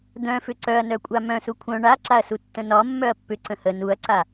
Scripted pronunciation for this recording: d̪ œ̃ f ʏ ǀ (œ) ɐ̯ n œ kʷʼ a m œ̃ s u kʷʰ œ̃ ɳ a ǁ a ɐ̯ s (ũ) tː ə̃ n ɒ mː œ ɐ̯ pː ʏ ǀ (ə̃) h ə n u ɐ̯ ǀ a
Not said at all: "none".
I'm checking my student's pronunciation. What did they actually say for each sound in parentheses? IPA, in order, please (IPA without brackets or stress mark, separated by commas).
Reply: œ, u, ə̃